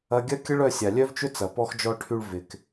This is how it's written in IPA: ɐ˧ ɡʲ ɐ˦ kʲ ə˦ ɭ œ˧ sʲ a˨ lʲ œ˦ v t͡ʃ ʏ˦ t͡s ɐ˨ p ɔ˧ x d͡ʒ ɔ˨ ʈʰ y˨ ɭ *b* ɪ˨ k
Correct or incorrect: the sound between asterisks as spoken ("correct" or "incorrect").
incorrect